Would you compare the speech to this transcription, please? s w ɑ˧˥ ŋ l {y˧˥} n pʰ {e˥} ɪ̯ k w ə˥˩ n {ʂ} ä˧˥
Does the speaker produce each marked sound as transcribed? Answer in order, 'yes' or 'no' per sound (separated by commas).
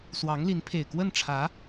no, no, no